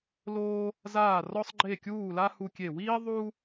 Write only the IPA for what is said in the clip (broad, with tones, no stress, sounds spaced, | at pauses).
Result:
l oː˥ | z aː˥˧ r ɔ˥ sˤ ɡ͡ǃ e˥˧ kʲ uː˥˧ l a˥ h u˥ kʲ e˥˧ w iː˥ ðˤ uː˥